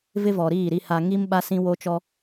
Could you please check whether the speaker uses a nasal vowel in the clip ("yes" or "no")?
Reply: yes